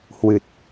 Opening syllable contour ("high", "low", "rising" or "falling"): low